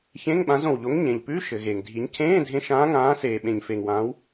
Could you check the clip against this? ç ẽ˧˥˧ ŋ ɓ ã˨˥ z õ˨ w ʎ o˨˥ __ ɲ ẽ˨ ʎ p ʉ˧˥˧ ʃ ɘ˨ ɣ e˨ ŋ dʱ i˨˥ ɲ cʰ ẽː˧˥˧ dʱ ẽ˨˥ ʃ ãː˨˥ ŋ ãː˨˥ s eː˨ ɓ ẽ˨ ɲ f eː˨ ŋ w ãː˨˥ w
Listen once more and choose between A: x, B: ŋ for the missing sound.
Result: B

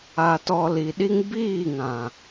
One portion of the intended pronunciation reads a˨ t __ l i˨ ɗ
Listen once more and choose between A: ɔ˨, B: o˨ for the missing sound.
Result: A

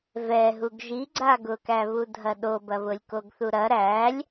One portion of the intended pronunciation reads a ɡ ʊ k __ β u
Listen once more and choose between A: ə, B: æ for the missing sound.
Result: B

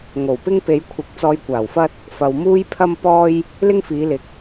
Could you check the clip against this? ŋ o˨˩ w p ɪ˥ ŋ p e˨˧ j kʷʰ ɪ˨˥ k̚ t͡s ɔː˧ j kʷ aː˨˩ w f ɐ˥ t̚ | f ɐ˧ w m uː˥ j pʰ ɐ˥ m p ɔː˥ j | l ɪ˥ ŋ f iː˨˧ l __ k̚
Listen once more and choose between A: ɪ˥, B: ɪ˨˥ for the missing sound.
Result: B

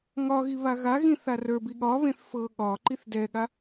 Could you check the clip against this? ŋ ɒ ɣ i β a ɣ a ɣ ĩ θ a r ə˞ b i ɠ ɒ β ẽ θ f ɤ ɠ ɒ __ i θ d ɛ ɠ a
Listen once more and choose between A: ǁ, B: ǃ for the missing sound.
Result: B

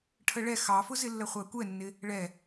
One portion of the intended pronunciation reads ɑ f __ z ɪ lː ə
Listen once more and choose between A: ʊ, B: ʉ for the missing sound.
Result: A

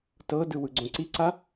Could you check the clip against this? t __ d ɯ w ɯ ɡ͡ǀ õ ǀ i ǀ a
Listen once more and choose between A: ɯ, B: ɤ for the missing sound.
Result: B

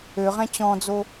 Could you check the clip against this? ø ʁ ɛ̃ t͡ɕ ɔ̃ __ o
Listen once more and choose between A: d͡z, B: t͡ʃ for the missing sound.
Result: A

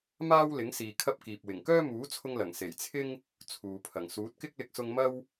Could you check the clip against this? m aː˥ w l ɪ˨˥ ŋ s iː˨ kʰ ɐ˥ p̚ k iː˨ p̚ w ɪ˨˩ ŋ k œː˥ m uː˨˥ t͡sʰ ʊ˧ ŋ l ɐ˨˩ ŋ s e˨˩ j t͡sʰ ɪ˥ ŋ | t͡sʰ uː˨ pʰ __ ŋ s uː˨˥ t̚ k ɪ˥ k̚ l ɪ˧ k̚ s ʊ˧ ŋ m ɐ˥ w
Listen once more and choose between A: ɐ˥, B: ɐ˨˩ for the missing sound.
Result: B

